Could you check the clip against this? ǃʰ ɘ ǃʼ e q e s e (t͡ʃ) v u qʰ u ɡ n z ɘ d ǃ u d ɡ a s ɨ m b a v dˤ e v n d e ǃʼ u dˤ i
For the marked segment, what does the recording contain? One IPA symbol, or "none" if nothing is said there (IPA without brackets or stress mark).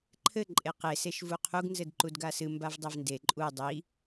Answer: ʃ